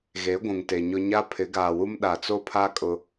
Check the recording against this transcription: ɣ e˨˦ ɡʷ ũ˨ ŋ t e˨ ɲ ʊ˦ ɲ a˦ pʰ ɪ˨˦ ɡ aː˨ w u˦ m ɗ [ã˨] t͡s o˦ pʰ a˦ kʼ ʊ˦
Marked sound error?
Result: yes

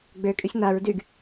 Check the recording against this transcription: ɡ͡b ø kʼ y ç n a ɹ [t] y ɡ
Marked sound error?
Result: yes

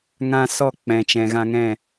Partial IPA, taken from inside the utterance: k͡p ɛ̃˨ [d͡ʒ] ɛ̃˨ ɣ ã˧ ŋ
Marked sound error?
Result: yes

